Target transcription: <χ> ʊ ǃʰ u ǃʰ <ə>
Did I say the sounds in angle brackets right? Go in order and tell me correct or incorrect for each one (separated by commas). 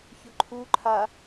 incorrect, incorrect